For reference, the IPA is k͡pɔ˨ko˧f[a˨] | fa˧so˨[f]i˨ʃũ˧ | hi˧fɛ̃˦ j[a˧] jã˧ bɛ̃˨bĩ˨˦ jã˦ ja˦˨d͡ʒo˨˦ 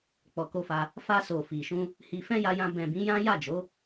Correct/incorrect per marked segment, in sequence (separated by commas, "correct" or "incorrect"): incorrect, correct, correct